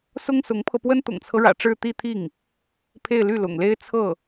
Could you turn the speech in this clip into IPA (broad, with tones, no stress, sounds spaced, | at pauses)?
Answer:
s ʊ˥ ŋ s ʊ˧˥ ŋ pʰ ɤ˧ p w ə˥ n t̪ ʊ̰˨˩ ŋ t͡sʰ ɤ˦ ɻ ä̰˨˩ ʈ͡ʂ ɻ̩˥˧ t̪ i˥˧ t̪ʰ i˥˩ ŋ | pʰ e˥˧ ɪ̯ l y˥˩ l ʊ̰˨˩ ŋ l e˥ ɪ̯ t͡sʰ ɤ˥˩